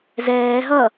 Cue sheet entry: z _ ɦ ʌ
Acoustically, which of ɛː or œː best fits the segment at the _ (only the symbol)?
ɛː